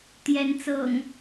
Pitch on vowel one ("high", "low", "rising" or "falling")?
rising